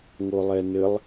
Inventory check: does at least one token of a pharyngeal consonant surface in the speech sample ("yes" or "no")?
no